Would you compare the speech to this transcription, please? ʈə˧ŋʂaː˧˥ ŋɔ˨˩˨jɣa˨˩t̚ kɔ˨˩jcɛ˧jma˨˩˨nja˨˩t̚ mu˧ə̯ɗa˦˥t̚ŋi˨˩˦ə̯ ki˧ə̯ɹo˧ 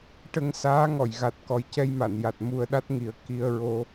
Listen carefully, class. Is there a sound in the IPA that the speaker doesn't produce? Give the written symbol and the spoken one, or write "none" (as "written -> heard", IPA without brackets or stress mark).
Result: ʂ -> s